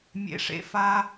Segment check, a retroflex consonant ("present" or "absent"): present